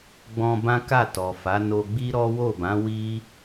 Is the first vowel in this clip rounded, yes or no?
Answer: yes